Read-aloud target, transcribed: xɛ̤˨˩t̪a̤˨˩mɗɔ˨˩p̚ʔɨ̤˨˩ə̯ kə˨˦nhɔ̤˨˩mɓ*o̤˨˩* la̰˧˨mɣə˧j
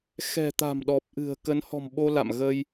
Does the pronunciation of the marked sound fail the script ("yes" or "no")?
yes